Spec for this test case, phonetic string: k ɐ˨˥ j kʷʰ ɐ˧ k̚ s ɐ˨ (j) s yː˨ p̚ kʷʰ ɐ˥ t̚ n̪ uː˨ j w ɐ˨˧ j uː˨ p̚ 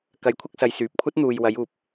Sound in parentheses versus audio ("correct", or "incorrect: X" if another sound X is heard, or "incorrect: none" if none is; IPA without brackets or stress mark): correct